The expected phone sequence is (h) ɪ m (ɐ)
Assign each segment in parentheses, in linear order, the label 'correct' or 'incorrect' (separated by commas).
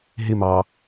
incorrect, incorrect